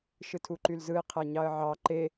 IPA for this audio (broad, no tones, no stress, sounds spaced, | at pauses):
ʃ ɯ tʰ u ǃ y l z ɯ ɪ̯ qʰ æ ɲ ɑ ə̯ ʕ ɑ ǃ e